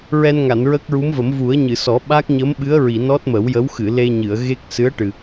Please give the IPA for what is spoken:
ɹ ɛ˧ n ŋ a˨˩˨ n ɹ ə˦˥ k̚ ɹ u˧˥ m v ə˨˩˦ m v u˨˩˦ ə̯ ɲ ɨ˨˩˨ s ɔ˨˩˦ ɓ a˦˥ k̚ ɲ ə˧˥ m ɓ ɨ˧˥ ə̯ ɹ i˨˩˨ n ɔ˦˥ t̚ m ə˨˩˦ w j ə˧˥ w x ɨ˨˩˨ l e˧ ɲ ɨ˨˩˨ ə̯ ɣ e˦˥ k̚ s ɨ˧˥ ə̯ ʈ ɨ˨˩

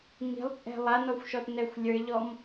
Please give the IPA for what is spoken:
ŋ i̤ lˠ t͡sʼ ɛ̤ lˠ a n ɔ xʷ ʃ ɔ t n ɛ xʷ lʲ ə˞ ʎ ɔ m

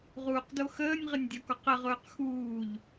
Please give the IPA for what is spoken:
ʁ uː q d o x əː nʲ ʁ ə nʲ dʲ ɔ k ɔ q ə ʁ ʊː q x uː ʎ

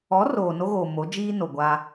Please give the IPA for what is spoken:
ɔ˨˦ r oː˨ n o˦ ɣ oː˨ m o˨˦ d͡ʒ iː˦ n o˨ ɡʷ a˦

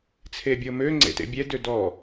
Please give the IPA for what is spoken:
t͡sʰ e bʲ ɤ m ø ŋ͡ǀ ḛ t ḛ bʲ ɛ d ø d ɔ

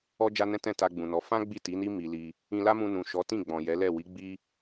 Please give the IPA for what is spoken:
ɔ˦ d͡ʒ a˦ n ɛ̃˦ t ɛ̃˦˨ t a˧ ɡ͡b ũ˨ n ɔ˨˦ f ã˦ ɡ͡b i˦˨ t i˨˦ n i˦ m i˧ l i˧ | ĩ˧ l a˦ m ũ˧ n ũ˨ ʃ ɔ˨˦ t ĩ˦˨ ɡ͡b ɔ̃˨ j ɛ˨˦ l ɛ˦˨ w i˨˦ ɡ͡b i˦

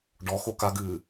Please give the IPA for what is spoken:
ɖ ɔ x o k a ɡ ɨː

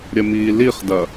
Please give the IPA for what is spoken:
ɾʲ ɐ m iː l i χ d ɐ

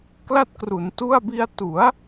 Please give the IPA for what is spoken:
k l a˥˩ t̚ k r u˩˦ n t u˥˩ a̯ b i˧ a̯ t u˩˦ a̯

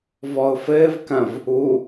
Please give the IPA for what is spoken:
v ɔ ʊ̯ f ɘː v k ɐ̃ v | u

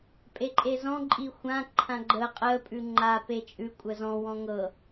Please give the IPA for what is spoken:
pʼ e ǃʼ e z ɔ̃ ǃʼ i xʷ ã ǃʰ ã ɡ͡ǃ ə qʼ ə pʼ ʉ ŋ͡ǃ a p e t͡ʃʼ ʉ kʷʼ ə z ɔ̃ w ɔ̃ ŋ ɤ

